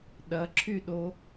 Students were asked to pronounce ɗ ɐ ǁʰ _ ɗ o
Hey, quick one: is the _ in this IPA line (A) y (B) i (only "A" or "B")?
A